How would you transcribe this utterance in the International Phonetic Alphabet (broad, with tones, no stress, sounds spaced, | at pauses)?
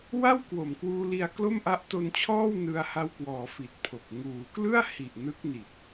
w a˥˩ w k w o˨˩ m k w uː˧ l i˧ a̯ k l o˥˩ m ʔ a˦˥ ʔ t o˧ n t͡ɕʰ ɔː˥˩ w n ɯ˧ a̯ h a˧ w k w ɔː˩˦ f i˨˩ t̚ pʰ o˨˩ k̚ ŋ uː˩˦ k l ɯ˥˩ a̯ h i˨˩ ʔ n ɯ˦˥ k̚ n i˨˩ t̚